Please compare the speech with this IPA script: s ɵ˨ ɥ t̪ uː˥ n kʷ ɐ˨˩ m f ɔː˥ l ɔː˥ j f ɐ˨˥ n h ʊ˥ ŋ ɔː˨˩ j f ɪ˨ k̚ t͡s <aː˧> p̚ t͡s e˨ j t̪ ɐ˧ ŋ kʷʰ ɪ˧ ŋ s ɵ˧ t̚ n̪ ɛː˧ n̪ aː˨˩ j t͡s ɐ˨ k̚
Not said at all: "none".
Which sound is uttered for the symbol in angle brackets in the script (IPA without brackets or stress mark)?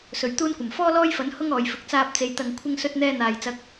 aː˧